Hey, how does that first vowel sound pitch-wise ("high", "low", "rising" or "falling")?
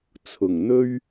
low